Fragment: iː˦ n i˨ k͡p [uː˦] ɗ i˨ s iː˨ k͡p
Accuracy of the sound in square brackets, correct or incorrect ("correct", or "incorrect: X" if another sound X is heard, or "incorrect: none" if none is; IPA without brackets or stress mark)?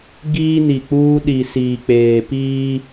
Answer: correct